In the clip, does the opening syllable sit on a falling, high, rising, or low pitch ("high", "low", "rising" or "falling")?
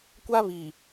high